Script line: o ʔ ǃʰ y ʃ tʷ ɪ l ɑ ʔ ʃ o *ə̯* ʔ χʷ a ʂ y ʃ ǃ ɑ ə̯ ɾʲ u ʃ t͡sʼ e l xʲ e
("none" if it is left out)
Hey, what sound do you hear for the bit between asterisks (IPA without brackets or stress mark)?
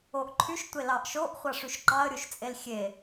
none